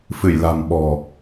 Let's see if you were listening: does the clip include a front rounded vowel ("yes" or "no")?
no